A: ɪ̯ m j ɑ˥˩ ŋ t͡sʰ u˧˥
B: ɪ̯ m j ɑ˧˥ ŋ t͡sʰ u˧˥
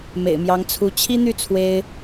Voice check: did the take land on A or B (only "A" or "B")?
B